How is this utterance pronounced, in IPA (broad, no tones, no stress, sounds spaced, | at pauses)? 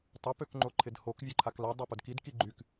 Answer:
tˤ œ p ø k ŋ͡ǃ o ǃʰ ɪ d h o k vʲ œ ǃʰ a k l a dˤ a p ʊ d k i d k i ɡ͡ǃ y k